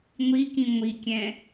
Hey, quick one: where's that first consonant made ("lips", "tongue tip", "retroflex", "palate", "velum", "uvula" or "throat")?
velum